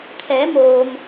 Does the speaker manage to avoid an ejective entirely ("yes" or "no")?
yes